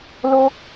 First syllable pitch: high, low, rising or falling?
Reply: high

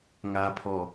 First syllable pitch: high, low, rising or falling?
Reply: low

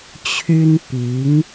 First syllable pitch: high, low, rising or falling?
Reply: high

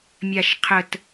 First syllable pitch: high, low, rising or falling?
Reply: low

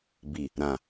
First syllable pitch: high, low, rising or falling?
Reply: low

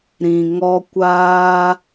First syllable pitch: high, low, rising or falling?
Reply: low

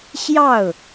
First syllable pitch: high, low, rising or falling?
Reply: falling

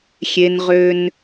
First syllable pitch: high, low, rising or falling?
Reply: high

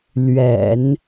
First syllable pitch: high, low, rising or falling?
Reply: low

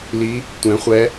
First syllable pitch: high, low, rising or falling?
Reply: rising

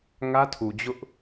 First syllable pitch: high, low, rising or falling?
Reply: high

